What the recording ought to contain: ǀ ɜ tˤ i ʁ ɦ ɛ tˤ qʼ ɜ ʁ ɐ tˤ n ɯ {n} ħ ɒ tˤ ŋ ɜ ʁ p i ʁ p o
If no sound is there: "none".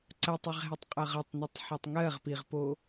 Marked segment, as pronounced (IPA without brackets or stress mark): tˤ